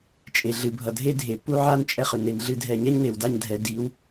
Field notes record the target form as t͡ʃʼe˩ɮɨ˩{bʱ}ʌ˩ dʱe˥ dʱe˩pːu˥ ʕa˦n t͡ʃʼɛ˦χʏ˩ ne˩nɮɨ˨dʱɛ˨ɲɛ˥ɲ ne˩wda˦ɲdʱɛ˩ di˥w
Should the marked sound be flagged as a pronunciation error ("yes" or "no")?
no